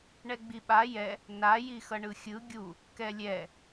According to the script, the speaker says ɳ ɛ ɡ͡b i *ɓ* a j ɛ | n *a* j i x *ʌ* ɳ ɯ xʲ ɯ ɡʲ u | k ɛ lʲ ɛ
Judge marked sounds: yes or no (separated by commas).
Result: yes, yes, yes